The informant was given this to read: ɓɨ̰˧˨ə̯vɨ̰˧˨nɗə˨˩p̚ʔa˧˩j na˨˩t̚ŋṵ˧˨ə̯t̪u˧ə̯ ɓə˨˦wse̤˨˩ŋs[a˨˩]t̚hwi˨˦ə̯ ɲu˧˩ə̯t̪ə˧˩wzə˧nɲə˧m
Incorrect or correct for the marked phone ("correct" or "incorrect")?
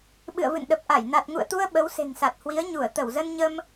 correct